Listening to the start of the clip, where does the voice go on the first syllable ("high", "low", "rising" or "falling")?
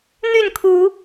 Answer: falling